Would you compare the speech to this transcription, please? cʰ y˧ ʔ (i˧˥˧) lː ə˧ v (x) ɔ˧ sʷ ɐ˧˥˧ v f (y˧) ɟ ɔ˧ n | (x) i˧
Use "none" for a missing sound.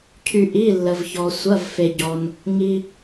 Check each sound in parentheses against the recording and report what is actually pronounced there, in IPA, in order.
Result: i˧˥˧, ç, e˧, ŋ

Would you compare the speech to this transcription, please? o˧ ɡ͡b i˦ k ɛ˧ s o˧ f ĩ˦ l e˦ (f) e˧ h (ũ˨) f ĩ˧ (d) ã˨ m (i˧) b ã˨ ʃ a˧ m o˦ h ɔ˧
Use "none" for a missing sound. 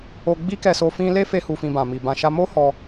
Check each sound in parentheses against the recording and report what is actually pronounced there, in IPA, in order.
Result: f, u˨, b, i˨

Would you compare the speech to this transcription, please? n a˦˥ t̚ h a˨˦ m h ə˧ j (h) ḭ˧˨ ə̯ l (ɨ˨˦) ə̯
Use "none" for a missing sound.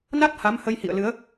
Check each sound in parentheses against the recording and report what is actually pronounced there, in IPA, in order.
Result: h, ɨ˨˦

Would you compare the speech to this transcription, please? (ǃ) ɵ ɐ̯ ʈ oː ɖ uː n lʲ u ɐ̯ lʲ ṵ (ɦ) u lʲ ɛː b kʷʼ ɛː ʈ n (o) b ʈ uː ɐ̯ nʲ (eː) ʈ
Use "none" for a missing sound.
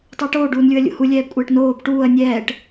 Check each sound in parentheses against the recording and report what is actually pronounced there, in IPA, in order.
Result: tˤ, h, oː, ɛː

